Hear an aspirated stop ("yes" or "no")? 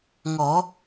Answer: no